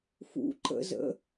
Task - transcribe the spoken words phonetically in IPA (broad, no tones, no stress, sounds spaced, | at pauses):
f ṵ ǃ ə̰ z ə̰